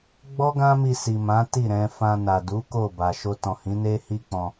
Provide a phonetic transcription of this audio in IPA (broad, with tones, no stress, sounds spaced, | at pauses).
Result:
ɡ͡b ɔ˦ ɡ ã˦ m i˧ s i˨ m ã˨˦ t i˦˨ ɾ ɛ̃˧ f ã˧ n a˨ d u˨˦ k o˦˨ b a˨ ʃ o˧ t ɔ̃˨ h ĩ˨˦ n e˦ h i˦ k͡p ɔ̃˧